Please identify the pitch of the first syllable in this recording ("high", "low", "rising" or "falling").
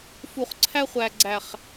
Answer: low